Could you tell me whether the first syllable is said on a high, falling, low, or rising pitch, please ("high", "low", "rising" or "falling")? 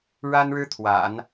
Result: high